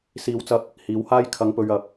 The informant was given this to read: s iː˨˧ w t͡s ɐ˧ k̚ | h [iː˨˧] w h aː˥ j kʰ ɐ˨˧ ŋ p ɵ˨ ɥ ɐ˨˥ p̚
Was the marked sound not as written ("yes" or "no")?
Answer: no